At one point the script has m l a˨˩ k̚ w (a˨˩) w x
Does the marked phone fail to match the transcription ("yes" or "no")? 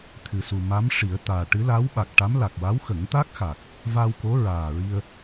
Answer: yes